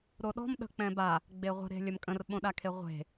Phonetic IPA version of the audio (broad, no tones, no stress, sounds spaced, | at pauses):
ɾ o ɗ ɔ̤ m ɗ ə̤ k͡p ɛ̃ b a | ɡ͡b e ʁʷ ə̤ ɾ e̤ lʲ ɐ m kʼ ə̃ r ɓ õ ɗ a kʰ e ʁʷ e̤